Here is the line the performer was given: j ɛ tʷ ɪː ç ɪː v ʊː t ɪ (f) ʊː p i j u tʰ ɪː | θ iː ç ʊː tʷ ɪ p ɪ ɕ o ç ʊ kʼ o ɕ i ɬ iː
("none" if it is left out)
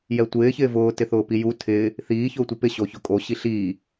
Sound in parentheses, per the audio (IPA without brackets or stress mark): θ